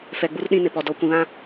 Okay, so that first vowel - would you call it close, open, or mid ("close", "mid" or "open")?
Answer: mid